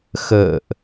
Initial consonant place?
velar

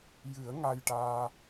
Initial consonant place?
palatal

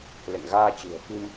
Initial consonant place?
alveolar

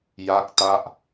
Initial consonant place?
palatal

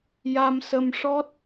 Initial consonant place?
palatal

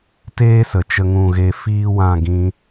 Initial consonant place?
alveolar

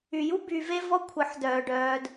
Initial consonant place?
palatal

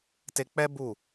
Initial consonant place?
alveolar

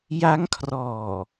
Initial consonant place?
palatal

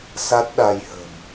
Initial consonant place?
alveolar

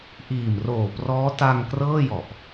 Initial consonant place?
glottal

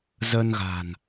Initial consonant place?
alveolar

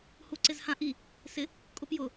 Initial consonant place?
glottal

